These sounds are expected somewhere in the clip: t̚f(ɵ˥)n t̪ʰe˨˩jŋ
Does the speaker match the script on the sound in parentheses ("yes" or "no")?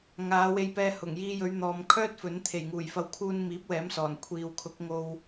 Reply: no